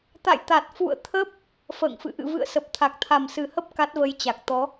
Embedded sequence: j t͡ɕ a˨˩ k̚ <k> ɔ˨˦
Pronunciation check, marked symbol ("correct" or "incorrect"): incorrect